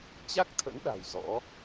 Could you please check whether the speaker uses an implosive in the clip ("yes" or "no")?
yes